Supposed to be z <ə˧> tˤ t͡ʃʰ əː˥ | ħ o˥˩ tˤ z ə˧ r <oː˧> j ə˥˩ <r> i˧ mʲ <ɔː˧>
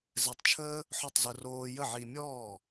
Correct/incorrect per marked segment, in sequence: incorrect, correct, incorrect, incorrect

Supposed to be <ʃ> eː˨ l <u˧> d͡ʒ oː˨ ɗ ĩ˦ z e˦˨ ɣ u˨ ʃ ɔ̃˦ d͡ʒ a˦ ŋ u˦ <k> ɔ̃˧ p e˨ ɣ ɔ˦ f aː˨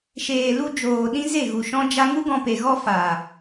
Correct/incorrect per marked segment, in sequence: correct, correct, incorrect

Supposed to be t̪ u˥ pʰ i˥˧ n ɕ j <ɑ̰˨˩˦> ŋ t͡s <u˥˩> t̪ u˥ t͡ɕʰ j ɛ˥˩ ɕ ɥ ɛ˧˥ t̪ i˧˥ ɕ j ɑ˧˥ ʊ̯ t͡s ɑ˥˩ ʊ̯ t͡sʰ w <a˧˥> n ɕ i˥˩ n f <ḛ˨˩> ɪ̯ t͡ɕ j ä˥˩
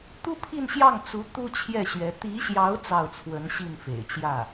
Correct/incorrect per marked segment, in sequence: incorrect, incorrect, incorrect, correct

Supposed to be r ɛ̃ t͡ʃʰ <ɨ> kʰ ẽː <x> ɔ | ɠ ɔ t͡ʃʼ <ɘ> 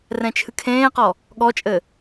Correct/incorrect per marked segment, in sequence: correct, incorrect, correct

